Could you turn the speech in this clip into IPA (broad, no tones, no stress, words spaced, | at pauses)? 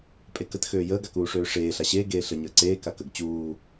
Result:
pʼekət xøːjəːɡ akuːʂøːʂeː ɬaɕeː ɡeːɬə ɲəːǀeː kakəɡ t͡ɕuː